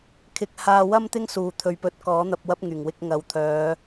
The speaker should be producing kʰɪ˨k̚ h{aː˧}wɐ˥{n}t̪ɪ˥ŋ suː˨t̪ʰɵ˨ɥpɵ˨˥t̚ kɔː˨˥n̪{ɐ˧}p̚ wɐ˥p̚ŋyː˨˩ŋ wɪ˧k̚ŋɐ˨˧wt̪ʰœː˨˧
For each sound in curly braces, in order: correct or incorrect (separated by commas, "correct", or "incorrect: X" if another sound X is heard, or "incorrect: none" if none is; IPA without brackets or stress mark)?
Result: correct, incorrect: m, correct